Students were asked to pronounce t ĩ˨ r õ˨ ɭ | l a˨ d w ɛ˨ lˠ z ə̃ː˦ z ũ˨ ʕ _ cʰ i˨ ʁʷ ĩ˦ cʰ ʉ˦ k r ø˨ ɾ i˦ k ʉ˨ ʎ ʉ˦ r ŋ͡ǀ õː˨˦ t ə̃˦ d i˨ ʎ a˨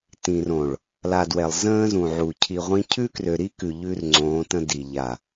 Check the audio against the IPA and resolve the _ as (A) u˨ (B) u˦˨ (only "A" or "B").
A